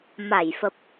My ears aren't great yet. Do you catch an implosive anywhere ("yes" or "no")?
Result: no